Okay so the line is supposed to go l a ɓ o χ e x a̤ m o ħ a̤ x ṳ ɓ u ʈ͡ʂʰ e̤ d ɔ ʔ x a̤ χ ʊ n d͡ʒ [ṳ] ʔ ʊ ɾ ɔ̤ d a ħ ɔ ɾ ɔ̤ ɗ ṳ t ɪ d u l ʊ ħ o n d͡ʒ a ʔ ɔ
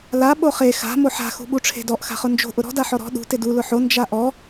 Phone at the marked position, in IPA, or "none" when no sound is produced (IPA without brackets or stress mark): o̤